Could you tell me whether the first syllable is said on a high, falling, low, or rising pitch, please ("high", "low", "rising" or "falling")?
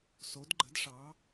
rising